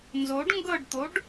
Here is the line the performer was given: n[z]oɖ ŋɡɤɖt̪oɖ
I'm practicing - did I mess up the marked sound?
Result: no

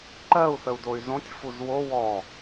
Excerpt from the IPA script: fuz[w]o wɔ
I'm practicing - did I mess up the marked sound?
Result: no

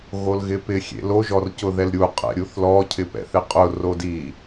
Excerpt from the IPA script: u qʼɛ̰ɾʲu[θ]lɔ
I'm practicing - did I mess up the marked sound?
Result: no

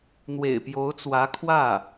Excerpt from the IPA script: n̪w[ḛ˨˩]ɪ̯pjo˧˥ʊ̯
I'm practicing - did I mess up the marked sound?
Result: no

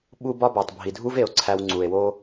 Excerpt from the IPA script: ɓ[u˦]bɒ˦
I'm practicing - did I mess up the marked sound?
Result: no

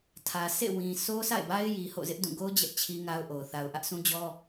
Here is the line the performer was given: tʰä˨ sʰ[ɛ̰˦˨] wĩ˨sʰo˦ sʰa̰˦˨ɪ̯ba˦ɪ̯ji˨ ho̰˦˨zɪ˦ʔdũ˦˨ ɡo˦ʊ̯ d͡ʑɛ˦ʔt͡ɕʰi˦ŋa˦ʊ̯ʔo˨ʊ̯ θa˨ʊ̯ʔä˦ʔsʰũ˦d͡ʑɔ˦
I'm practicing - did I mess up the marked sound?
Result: yes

